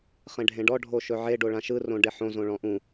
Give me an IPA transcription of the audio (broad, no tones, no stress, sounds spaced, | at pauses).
χ ẽ ɖʱ ẽ ɖ ɔ ɖʱ o ʃ ɵ ʕ e ɖ o ɭ ã ʃ ɯ r õ ɖ e ħ õ z õ ɭ ɔ̃ ʔ ũ